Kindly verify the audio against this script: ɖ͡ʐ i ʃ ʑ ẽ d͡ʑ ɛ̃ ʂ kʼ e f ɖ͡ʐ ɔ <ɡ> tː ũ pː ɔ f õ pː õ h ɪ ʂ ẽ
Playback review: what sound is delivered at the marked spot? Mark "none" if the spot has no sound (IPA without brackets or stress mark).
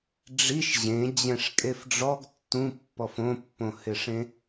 ɡ